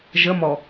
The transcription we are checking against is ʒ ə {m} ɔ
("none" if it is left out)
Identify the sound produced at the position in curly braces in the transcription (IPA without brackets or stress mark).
m